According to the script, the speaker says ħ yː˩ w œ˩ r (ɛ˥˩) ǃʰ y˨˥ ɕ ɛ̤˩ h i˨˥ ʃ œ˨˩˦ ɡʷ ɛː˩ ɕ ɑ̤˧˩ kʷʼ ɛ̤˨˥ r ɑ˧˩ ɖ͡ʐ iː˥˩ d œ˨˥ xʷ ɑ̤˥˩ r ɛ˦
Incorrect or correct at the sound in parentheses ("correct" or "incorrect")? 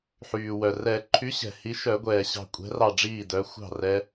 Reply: incorrect